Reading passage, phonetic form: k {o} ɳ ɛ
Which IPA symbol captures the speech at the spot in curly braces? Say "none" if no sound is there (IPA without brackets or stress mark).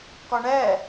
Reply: ɔ